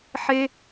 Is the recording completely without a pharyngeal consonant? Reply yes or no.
no